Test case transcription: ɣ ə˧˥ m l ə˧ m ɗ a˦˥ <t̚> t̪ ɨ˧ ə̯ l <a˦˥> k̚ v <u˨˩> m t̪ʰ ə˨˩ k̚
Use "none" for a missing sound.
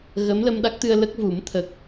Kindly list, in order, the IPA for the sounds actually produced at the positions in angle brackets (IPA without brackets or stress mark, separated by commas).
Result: k̚, ə˦˥, u˨˩˦